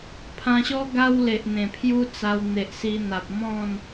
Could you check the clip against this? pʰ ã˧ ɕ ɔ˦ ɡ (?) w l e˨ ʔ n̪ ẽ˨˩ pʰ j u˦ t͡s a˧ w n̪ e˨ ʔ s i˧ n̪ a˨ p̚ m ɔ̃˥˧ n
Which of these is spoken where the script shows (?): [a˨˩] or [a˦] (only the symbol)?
a˦